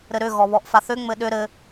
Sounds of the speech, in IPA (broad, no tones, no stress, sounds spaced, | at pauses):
ɾ ɘ ɾ ʏ ɣ ɔ β ɔ ʔ f a θ ʏ ŋ͡m ɘ ɗ ʏ ɾ ɘ